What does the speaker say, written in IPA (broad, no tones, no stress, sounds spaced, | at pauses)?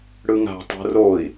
ɽ ɯ ŋ a̤ tˤ o̤ r o i̯